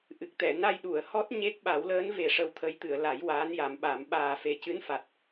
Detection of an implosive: present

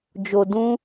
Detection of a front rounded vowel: absent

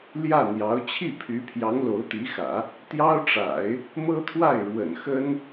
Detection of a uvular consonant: absent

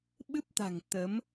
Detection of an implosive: present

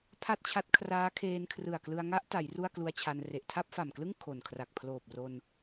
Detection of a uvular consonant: absent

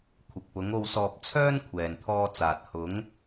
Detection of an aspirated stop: present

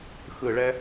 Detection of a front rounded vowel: absent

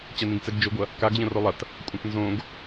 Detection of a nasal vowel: present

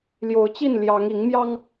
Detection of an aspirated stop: absent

